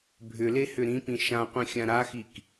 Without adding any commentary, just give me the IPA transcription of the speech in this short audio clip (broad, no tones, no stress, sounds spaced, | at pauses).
bʱ ʏ l e h ʏ ɾ ĩ p ĩ ʃ ã qʷ ĩ xʲ ã ɾ a x i k